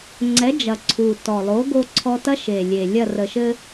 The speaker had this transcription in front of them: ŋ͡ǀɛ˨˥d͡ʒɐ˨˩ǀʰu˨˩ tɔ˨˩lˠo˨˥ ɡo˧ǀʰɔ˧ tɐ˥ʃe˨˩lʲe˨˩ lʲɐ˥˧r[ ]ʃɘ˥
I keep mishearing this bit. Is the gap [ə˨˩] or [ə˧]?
ə˧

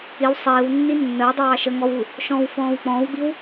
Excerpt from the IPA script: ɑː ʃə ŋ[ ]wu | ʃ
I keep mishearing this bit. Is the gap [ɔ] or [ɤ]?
ɔ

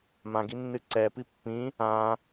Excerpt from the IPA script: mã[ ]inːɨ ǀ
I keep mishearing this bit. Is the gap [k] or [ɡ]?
ɡ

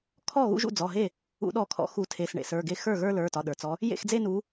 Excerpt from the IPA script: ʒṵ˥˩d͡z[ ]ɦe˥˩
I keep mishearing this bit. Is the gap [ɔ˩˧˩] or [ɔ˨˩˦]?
ɔ˩˧˩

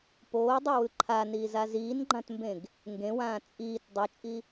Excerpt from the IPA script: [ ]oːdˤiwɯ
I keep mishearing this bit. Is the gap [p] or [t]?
p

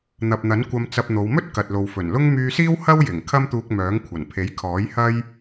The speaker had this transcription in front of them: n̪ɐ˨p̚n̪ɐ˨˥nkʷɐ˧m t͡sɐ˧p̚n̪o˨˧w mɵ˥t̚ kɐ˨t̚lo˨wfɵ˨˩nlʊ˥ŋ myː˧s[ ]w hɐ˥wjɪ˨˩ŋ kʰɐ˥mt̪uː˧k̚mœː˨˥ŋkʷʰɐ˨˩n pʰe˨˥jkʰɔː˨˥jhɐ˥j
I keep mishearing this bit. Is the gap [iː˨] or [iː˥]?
iː˥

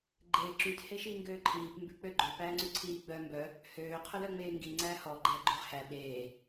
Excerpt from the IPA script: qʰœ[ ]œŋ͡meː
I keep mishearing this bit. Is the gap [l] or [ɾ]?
l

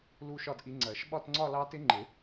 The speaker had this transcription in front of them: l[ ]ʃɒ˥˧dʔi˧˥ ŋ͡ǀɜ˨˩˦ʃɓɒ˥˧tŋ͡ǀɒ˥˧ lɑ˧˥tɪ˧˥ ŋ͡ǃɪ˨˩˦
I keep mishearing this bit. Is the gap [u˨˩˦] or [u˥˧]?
u˥˧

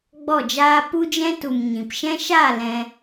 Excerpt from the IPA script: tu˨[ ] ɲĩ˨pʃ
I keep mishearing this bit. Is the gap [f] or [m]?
m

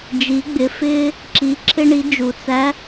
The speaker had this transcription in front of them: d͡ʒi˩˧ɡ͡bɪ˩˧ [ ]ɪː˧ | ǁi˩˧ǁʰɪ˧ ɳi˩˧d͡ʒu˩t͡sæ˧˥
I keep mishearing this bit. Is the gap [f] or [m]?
f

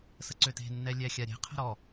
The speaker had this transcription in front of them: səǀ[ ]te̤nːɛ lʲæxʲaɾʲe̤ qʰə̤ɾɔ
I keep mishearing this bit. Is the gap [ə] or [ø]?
ø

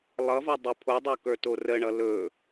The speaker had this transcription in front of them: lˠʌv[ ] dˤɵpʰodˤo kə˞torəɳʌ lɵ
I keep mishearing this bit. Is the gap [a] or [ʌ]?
ʌ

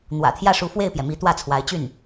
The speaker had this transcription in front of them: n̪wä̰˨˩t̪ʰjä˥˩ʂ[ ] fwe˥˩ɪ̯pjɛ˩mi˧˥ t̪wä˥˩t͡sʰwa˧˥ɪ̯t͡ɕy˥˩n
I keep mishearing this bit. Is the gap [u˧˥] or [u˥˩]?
u˧˥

